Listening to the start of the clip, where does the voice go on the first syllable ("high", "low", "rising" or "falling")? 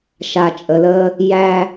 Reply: low